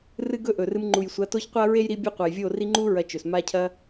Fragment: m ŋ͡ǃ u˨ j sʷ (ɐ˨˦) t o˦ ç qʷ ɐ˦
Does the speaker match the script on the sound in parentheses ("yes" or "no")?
yes